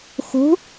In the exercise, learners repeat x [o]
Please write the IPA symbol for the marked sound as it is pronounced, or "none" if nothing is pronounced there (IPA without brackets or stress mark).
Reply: o̤